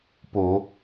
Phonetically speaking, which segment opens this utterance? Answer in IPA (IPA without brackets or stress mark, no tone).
p